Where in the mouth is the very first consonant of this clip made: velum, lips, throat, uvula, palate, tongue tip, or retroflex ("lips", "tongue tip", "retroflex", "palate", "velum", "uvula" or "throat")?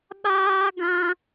lips